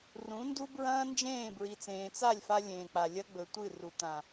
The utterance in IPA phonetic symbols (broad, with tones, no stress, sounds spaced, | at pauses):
r ũ˨˦ n d u˦ b ɹ ɐ̃ː˦ n d͡ʒ ẽː˦˨ b ɹ i˨ t͡s ẽː˨ t͡s a˦˨ lʲ f a˧ lʲ ẽː˨ k͡p a˨ lʲ ɐ˦ ɡ͡b ɵ˨ tʷ ɨ˦˨ r u˨ t̪ ã˨